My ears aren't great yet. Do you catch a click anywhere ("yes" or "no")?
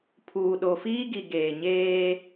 no